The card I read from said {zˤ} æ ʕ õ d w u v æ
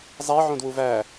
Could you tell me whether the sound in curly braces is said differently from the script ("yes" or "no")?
no